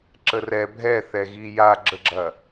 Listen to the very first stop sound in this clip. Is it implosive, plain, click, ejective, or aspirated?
click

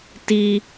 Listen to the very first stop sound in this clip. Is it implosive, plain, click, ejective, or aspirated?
plain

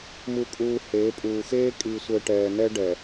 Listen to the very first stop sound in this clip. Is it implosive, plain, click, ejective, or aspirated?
ejective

